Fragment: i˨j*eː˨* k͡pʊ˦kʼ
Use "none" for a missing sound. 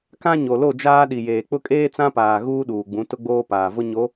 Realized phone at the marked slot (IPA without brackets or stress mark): eː˨